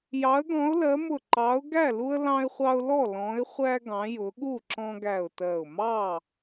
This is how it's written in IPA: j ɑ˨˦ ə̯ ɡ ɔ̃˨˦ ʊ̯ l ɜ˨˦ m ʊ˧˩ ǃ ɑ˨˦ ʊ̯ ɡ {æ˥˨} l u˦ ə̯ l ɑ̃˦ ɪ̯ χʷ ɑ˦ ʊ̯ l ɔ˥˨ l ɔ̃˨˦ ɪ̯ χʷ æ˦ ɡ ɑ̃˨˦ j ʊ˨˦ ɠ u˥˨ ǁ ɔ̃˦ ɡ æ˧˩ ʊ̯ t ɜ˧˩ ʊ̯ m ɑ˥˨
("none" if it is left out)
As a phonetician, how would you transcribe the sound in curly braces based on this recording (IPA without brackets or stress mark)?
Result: æ˥˨